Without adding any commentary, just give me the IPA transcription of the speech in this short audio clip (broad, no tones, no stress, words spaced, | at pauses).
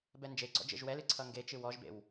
bɛnd͡ʒeɡ͡ǀɔ̰ d͡ʒḛʒwɛlɨ ǀʰʌŋɡet͡ʃɨ wɔʒbḛw